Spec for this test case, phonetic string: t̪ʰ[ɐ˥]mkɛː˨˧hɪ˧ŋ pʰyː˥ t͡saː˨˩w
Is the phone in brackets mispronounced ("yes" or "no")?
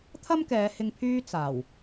no